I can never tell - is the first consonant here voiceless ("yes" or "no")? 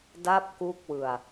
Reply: no